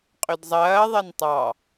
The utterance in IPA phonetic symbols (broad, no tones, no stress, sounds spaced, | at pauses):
qʼ ʏ d zˤ ɐː ðˤ ɐ n tˤ ɑ